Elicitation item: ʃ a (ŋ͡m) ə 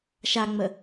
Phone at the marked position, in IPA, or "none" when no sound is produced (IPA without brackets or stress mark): ŋ͡m